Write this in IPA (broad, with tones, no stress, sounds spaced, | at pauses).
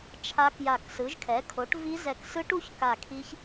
t͡ʃʰ a˦˥ k j a˧˩ k s ɯ˩˥ ʒ kʰ ɛ˩˥ kʰ o˩˥ ʈ v i˦˥ z ɛ˧˩ k s ɯ˦˥ ʈ u˦˥ ç k a˧˩ kʰ i˦˥ ç